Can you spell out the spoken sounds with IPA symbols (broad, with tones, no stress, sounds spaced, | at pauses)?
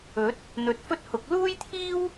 ɵ˨˥ t̚ | n̪ ɵ˨˥ t̚ f ɵ˥ t̚ h ʊ˨˥ k̚ l uː˥ j t̪ʰ iː˥ w